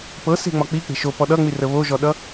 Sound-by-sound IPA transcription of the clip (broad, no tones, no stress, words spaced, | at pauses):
pɤse̤ŋ͡mɒ k͡pik͡pe̤ ʃopɔ ɗʌŋ͡mirə βoʒɔɗʌ